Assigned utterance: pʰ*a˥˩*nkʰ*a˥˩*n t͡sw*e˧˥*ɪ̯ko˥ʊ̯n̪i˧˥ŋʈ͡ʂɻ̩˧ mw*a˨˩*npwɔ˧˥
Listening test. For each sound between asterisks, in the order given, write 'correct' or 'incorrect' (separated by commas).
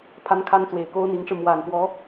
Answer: incorrect, incorrect, incorrect, correct